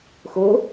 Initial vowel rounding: rounded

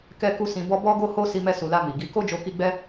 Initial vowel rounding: unrounded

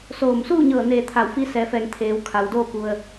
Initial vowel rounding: rounded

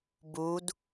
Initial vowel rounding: rounded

